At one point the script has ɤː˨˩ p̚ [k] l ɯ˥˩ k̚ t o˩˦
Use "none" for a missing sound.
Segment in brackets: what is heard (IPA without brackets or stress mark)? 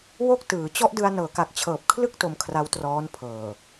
kʰ